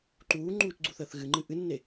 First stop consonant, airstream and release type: click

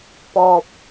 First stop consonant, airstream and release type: plain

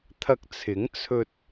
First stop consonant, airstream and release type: aspirated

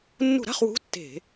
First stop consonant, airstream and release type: plain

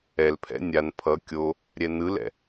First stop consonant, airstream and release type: aspirated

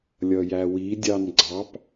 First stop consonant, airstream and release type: plain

